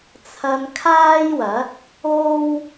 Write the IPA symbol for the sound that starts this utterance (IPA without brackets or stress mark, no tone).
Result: t͡sʰ